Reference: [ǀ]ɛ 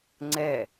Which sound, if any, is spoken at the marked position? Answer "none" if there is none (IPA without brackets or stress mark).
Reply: ŋ͡ǀ